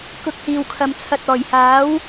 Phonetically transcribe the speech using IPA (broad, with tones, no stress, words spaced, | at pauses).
kʊ˧k̚hiː˨wkʰɐ˨m t͡sʰɐ˨t̚ ɔː˨˩jhaː˨˥w